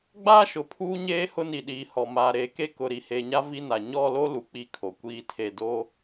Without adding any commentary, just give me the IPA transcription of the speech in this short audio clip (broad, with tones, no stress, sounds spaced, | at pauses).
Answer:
ɡ͡b aː˦ ʃ ʊ˨ pʰ uː˦ ɲ eː˦ h ʊ˦ n i˨ ɗ iː˨ h ɔ˨ m aː˨ ɾ eː˨ k e˦ k ʊ˨ ɾ i˨ h e˨ ɲ a˦ v i˦ n a˨ ɲ ɔ˦˨ l o˦ l u˨ k͡p i˦˨ kʰ o˨ kʷ iː˦ tʰ e˦˨ d o˦